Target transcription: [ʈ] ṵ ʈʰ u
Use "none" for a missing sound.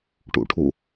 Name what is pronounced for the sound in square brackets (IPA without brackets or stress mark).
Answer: ʈ